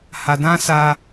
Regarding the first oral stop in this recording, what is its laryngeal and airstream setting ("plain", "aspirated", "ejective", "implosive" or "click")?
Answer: plain